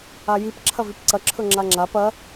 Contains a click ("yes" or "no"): yes